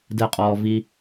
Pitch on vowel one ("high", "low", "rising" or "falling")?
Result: falling